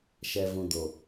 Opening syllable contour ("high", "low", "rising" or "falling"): low